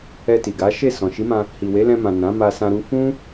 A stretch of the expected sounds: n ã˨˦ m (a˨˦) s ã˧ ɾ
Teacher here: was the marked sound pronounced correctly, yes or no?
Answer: no